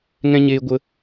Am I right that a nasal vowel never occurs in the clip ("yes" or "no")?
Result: no